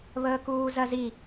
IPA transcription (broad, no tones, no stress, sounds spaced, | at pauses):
β əː k uː z ɜ z i